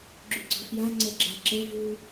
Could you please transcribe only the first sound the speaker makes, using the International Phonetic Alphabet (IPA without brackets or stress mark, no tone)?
ɡ͡ǁ